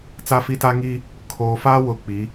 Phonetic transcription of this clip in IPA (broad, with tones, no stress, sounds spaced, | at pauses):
t͡s a˦ f i˦ t a˦ ŋ i˦ | kʰ oː˨ f a˦ w ʊ˦ k͡p i˨˦